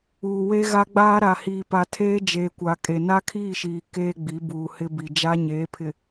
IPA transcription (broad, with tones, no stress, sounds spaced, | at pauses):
uː˨ w e˦ ɣ a˦ ɡ͡b aː˦ ɾ a˨ h iː˨ p a˨ tʰ eː˦ d͡ʒ eː˨ kʷ a˨ kʼ e˨ n a˦ kʰ iː˦˨ ʃ iː˨ k eː˦ ɡ͡b i˨˦ b uː˨ h ɪ˦ b i˨ d͡ʒ a˦ ɲ eː˨˦ pʰ ɪ˨